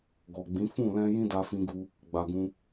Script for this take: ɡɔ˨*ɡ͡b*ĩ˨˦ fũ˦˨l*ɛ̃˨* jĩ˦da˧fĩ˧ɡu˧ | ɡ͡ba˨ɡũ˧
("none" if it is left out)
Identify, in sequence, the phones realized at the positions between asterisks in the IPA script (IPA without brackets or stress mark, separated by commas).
ɡ͡b, ɛ̃˧